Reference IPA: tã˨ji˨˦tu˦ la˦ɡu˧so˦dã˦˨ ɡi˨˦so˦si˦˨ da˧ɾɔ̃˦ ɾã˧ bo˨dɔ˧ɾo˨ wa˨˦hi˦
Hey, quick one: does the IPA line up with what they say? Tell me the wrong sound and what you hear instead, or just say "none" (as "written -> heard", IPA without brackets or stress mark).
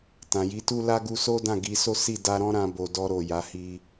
w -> j